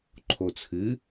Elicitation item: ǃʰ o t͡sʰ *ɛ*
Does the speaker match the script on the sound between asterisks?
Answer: no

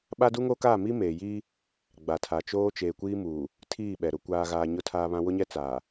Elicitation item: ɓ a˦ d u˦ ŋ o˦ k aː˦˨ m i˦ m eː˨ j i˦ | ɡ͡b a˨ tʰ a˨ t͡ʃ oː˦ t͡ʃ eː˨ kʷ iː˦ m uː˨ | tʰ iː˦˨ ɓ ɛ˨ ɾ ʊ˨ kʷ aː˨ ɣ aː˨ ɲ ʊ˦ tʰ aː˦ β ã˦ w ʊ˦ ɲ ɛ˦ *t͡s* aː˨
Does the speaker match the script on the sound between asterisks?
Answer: yes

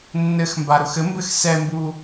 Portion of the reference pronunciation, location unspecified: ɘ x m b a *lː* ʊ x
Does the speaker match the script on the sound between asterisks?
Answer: no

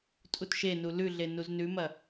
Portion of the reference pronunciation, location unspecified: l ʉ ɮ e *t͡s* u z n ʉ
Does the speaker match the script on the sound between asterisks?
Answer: no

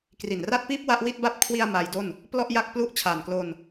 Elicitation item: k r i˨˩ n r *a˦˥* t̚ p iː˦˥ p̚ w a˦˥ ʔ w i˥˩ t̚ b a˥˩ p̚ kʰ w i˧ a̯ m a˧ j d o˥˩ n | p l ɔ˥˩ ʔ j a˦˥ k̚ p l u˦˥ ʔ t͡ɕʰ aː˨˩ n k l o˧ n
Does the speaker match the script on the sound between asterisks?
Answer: yes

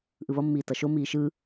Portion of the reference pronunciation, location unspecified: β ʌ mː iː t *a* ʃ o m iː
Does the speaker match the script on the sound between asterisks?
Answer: no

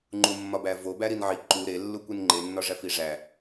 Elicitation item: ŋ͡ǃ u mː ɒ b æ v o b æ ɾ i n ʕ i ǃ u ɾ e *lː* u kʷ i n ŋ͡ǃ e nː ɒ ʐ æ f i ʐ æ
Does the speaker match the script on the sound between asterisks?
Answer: yes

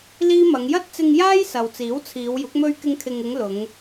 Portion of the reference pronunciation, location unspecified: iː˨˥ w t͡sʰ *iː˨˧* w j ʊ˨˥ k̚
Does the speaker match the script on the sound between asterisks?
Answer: yes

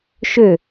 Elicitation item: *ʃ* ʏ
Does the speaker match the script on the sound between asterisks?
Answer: yes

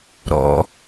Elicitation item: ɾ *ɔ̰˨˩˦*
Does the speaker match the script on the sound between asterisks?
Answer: yes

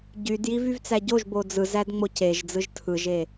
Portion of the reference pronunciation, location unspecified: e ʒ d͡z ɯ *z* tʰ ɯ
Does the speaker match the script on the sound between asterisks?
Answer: no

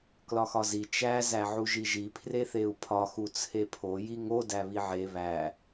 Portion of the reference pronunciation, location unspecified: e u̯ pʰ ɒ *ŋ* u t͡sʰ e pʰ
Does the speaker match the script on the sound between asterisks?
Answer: no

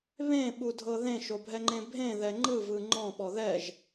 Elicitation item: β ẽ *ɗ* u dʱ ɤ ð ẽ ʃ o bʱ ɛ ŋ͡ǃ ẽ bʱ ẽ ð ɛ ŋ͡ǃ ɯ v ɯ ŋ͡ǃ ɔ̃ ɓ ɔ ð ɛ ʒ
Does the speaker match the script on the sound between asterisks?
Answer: no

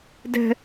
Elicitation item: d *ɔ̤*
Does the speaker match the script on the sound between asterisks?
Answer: no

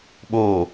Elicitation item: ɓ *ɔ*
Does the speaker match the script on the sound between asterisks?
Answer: no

